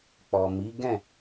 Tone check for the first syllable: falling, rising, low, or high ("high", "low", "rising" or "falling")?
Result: low